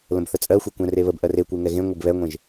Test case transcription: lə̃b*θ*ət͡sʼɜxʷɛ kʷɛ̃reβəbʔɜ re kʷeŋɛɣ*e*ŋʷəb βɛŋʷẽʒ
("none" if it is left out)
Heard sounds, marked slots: θ, ẽ

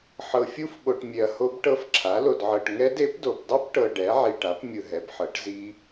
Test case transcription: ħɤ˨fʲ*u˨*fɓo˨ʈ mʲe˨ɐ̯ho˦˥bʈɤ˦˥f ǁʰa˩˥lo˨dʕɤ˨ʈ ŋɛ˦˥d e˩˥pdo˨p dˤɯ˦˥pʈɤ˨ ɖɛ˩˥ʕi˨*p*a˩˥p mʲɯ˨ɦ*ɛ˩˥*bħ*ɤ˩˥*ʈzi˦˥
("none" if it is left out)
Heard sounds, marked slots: u˦˥, ʈ, ɛ˩˥, ɤ˩˥

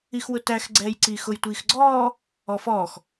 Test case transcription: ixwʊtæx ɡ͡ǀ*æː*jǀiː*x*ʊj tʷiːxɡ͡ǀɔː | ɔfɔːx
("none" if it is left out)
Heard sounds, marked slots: ɛː, x

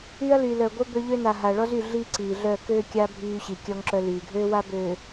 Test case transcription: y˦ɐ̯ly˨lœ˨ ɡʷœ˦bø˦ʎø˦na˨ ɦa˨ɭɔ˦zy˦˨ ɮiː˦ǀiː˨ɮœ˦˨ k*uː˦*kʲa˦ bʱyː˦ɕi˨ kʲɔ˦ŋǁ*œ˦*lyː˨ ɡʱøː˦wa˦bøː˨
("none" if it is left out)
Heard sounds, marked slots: øː˦, œ˦

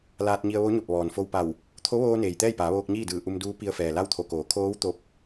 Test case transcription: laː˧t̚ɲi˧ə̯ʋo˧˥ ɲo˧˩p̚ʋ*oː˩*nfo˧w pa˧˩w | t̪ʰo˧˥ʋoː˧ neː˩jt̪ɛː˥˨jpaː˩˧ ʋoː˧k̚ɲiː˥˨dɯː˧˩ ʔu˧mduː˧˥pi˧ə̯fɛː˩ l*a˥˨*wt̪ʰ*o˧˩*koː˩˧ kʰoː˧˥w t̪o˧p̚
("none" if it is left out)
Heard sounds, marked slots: ɔː˩, a˥˨, o˧˩

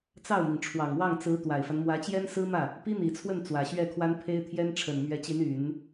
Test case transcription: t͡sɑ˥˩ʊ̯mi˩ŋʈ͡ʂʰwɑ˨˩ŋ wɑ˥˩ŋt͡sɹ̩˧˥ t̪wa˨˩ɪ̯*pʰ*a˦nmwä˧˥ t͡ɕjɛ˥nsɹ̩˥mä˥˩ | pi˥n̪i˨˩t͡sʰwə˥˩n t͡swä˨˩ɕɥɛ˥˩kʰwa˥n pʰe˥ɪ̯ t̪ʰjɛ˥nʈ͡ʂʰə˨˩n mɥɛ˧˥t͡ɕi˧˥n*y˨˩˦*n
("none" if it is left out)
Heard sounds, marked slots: f, y˨˩˦

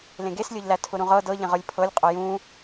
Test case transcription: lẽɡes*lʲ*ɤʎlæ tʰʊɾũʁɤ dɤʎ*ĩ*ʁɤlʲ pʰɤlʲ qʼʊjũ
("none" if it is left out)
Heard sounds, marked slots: lʲ, ẽ

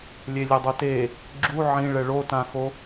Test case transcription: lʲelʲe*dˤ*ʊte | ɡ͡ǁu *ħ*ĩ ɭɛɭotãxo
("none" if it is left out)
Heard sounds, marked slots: dˤ, ʕ

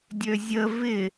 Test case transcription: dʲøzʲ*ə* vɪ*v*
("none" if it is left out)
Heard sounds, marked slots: ə, none

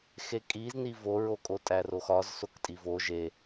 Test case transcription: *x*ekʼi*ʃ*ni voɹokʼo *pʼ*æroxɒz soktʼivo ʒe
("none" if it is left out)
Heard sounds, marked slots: x, z, tʼ

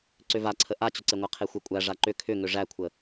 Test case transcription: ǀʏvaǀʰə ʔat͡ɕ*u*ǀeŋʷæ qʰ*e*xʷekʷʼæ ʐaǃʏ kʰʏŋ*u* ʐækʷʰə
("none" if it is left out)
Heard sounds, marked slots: ʏ, e, ʏ

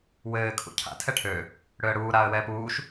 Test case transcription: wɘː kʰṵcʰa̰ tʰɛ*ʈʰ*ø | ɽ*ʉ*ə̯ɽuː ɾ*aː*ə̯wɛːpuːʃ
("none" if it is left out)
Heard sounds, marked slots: ʈʰ, ø, aː

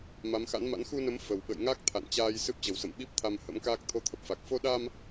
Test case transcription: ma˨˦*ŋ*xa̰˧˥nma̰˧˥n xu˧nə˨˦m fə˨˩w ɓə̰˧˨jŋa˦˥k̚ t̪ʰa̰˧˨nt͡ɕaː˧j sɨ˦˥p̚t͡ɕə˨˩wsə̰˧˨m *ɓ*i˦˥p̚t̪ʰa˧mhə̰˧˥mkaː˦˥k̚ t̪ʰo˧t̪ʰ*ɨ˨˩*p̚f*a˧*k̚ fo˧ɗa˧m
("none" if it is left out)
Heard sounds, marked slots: m, ɓ, ə˨˩, a˨˩

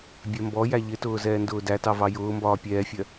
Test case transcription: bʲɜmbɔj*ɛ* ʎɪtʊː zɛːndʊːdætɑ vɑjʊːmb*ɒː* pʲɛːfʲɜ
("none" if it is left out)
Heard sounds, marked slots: æ, ɒː

